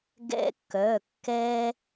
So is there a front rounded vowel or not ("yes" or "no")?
yes